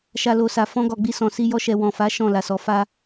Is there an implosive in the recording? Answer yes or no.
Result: no